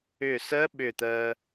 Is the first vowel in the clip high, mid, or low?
high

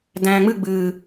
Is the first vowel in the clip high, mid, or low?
low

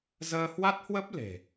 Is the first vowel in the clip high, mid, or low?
mid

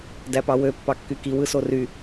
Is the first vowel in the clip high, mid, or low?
low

